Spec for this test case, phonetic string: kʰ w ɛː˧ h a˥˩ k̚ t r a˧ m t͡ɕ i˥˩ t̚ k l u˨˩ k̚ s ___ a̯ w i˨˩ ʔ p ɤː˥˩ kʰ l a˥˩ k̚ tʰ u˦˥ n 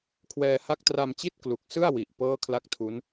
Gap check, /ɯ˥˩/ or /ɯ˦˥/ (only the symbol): ɯ˥˩